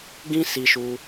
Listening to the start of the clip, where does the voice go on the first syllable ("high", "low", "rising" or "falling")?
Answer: high